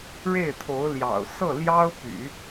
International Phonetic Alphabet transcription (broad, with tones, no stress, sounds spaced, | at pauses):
ɻ e˥˩ ɪ̯ t̪ʰ o˧˥ ʊ̯ l j ɑ̰˨˩ ʊ̯ s ɤ˥˩ l j ɑ˥ ʊ̯ p y̰˨˩˦